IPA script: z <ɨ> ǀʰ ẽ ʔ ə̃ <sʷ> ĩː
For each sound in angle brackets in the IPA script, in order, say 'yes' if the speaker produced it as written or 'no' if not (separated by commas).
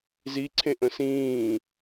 no, no